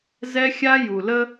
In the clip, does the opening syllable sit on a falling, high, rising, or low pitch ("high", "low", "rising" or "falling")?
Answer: high